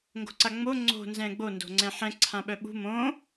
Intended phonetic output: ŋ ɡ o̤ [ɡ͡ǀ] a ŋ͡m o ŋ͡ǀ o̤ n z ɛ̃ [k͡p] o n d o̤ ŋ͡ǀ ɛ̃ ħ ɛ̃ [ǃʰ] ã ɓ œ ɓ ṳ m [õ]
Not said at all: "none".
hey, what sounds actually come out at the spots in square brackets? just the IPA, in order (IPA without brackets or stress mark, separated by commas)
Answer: ǀ, ɡ͡b, ǀʰ, õ